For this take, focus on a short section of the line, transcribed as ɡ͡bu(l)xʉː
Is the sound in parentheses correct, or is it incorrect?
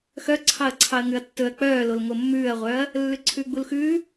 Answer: correct